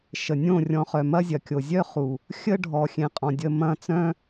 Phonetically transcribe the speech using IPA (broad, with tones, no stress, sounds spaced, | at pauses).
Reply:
ʃ ə˨ nʲ õ˦˨ rʲ ɔ̃˧ χ œ˨ m ɐ˦ zʲ ɐ˨ kʲ o˨ zʲ œ˦ χ u˨ | xʲ ə˦ ɖʱ ɔ˨ xʲ ẽ˨ qʼ ɔ̃˨ dʲ ə˧ m ɐ̃˦˨ t͡s œ̃˦